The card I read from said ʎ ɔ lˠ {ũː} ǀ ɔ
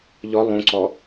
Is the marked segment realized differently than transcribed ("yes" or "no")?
yes